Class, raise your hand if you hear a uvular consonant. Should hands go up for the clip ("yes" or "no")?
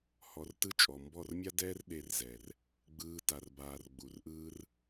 no